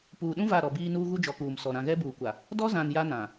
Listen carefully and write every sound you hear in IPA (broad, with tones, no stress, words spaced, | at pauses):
puː˨ɗũ˦ va˦˨ɾɔ˨biː˦nuː˦ ɣu˦d͡ʒɔ˨˦kuː˨msɔ˨ ɾã˨ ɣɛ˦buː˨kʷa˨ | dɔ˦zã˨n ja˦nã˨